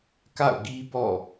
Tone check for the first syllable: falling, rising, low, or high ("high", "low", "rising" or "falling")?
falling